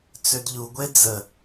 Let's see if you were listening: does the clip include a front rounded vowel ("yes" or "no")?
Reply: yes